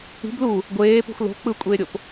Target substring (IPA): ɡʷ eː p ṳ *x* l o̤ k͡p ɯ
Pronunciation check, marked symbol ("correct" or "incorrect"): correct